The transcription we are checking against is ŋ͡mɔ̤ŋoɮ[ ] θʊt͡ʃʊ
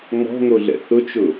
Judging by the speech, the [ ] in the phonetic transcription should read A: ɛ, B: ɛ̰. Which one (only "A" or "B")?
B